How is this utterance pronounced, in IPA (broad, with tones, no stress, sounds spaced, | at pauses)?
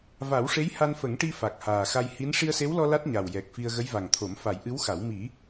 v a˨˩˦ w ʂ e˧˥ j h a˧ n f ə˨˩˦ ŋ ʈ i˧ f a˨˩ k̚ h aː˨˩ x a˧ j h i˧˥ n ʂ i˧ ə̯ s e˧˥ w l ɔ˧ l a˦˥ t̚ ɲ a˨˩ w j ɛ˨˩ k̚ f i˧ ə̯ ɣ ə˧˥ j v a˨˩ ŋ t̪ʰ o˨˩˦ m f a˨˩˦ j ʔ ɨ˧˥ w x a˨˩˦ w m i˨˩˦